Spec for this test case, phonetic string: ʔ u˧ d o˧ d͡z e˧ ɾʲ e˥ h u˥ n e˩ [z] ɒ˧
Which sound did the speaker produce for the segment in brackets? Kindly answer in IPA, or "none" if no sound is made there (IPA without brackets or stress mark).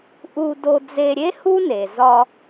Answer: z